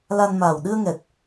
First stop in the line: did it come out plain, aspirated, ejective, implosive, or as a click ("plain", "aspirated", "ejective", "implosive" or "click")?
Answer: implosive